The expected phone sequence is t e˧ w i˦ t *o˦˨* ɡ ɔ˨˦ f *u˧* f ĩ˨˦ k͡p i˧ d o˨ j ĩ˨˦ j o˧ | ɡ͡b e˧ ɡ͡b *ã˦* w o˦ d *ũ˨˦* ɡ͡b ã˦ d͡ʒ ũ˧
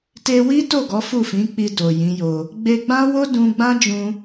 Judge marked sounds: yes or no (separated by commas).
yes, no, yes, no